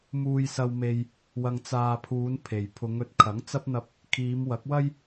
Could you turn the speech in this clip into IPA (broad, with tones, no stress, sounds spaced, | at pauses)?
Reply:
m uː˧ j s ɐ˧ w m e˧ j | w ɐ˧ ŋ t͡s aː˧ pʰ uː˨˧ n pʰ e˨ j pʰ ʊ˨˧ ŋ ɵ˨ t̚ kʰ ɐ˨˥ ŋ t͡s ɐ˧ p̚ n̪ ɐ˨˥ p̚ | kʰ iː˨˧ m w ɐ˨˥ k̚ w ɐ˥ j